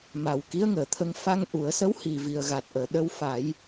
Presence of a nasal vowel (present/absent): absent